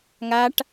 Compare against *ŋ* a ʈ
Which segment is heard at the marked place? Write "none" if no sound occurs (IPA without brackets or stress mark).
ŋ